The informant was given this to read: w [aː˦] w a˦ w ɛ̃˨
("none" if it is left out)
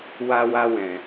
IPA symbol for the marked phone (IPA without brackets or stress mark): a˦